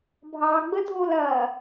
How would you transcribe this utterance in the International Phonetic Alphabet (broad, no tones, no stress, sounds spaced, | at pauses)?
bʱ ɑ ɡ͡b ə dʱ o l ɐ